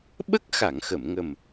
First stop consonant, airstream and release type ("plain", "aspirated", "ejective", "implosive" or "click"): implosive